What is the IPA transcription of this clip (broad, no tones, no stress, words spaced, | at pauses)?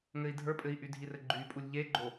ŋɘi̯dʱə˞pʼɘi̯ʔy dʱirɘɡ͡ǃypʼulʲ ʎeɡ͡ǃo